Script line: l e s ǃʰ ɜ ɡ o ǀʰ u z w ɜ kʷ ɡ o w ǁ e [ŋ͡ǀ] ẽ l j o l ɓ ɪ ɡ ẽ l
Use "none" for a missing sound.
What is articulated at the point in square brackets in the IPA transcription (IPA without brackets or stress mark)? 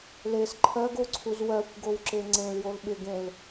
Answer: ŋ͡ǀ